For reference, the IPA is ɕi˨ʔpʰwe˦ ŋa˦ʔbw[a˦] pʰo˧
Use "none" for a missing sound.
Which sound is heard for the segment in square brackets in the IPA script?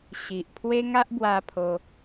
a˧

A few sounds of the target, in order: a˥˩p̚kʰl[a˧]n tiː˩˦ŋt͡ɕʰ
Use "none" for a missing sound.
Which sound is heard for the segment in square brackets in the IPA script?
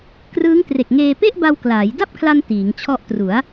a˧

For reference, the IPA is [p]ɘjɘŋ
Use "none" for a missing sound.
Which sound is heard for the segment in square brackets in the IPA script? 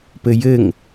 p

